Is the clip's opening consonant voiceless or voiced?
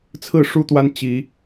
voiceless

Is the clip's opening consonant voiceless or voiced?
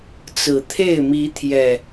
voiceless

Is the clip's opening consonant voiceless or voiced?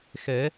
voiceless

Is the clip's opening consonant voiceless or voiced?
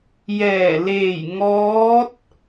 voiced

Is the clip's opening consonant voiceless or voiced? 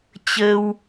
voiceless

